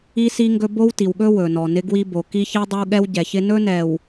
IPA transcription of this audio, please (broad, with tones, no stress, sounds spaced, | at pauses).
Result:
i˦ s i˦ ŋ ɡ ɵ˦ b o˦ w t i˨ w ɠ ɵ˦ w ɵ˨ n ɔ˨ n ɪ˦ ɡ w i˦ b o˨ k i˦ ç i˦ dˤ ɵ˦ w ɠ ɛ˦ w ɟ ɛ˨ ç ɪ˦ n ɵ˦ n ɛ˨ w